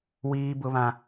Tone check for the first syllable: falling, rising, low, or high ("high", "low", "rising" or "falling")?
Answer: high